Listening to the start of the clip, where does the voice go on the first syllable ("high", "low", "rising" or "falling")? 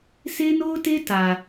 high